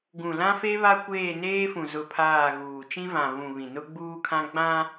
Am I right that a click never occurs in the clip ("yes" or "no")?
yes